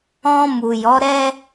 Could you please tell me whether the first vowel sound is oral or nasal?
nasal